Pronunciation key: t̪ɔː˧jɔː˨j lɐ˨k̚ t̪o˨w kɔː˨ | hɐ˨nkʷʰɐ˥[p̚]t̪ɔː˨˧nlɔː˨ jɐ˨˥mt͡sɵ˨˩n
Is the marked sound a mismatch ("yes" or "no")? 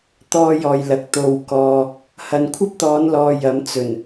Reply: no